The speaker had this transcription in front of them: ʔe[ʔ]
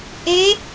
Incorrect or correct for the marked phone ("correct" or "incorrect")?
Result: incorrect